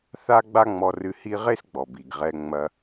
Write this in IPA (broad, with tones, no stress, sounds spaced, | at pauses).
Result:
θ a˥ ɡ͡b a˥ ŋ͡m ɔ˧ r ɨ˧ h i˥ ʁ e˥ s ɡ͡b ɔ˩ b i˩ ɡ ʁ ɛ˧ ŋ͡m ɐ˧